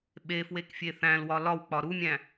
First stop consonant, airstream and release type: implosive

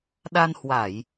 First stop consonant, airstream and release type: implosive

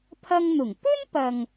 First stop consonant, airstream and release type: aspirated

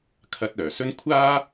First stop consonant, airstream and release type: aspirated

